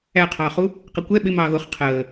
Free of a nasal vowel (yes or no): yes